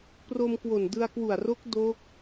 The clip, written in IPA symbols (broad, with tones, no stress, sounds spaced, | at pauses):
p r o˧ m k w o˨˩ n d ɯ˧ a̯ k w u˨˩ a̯ r o˦˥ k̚ d oː˦˥ k̚